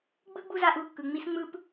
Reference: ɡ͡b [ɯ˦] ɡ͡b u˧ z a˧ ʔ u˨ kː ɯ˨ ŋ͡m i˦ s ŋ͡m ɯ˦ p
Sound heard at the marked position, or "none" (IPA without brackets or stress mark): ɯ˦